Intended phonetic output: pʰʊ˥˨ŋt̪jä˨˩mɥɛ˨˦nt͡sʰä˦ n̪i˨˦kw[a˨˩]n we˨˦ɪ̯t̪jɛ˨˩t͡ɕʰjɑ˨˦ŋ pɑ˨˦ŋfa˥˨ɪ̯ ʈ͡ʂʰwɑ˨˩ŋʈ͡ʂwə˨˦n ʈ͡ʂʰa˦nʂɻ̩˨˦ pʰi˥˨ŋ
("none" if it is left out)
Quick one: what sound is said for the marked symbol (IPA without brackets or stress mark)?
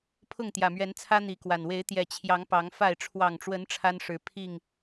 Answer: a˨˩